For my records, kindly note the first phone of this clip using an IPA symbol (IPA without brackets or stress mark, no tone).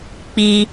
k͡p